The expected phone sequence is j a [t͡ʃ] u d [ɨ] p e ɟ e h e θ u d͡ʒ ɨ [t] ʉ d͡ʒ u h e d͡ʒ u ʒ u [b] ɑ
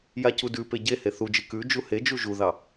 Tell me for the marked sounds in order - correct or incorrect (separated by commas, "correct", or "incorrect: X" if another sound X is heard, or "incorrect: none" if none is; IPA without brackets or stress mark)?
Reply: incorrect: c, incorrect: ʉ, incorrect: k, incorrect: ð